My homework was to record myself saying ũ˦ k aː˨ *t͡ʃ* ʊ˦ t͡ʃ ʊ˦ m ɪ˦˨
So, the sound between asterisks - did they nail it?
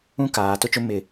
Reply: no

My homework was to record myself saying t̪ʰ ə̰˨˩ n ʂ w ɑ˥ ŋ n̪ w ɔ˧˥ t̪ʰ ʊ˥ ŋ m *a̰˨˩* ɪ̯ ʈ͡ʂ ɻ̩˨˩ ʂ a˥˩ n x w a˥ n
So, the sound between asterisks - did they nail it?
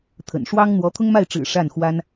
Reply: no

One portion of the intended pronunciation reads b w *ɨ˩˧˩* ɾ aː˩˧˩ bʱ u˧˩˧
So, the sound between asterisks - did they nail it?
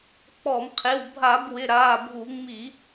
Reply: no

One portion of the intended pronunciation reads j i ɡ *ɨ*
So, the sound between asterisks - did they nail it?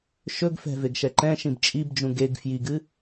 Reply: yes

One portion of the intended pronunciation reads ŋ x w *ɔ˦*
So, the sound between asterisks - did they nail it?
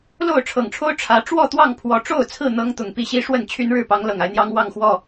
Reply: no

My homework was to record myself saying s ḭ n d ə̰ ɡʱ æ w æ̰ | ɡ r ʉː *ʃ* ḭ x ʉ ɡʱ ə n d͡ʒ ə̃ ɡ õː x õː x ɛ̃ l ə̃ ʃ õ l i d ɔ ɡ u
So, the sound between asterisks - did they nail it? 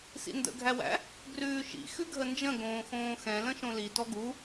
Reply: yes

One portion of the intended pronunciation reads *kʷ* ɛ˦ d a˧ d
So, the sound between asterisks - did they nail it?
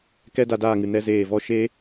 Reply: no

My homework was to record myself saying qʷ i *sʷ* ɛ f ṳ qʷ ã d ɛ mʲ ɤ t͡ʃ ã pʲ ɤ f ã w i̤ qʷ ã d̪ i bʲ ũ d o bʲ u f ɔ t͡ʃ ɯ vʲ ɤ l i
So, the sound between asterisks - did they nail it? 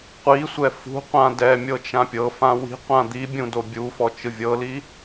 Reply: yes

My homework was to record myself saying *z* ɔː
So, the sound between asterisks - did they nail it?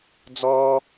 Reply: no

